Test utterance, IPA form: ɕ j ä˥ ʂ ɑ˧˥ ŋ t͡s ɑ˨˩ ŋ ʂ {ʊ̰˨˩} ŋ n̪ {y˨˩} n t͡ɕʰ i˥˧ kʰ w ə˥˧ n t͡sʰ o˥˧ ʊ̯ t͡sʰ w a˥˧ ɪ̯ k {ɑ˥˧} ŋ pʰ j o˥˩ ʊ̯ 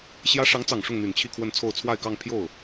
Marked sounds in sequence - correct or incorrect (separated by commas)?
incorrect, correct, correct